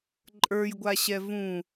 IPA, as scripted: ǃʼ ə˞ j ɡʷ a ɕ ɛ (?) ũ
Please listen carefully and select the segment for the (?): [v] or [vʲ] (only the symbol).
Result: v